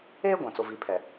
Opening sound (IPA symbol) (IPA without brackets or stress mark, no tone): eː